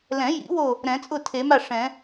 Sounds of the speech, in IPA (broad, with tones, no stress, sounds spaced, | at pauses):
l ɛ̃˨˩˦ j ḭ˨˩˦ w o˥˩ | ɾ ɛ̃˨˩˦ t͡sʼ ʊ˥˩ tʰ e˨˩˦ m a˥˩ ʂ ɛ̃˨˩˦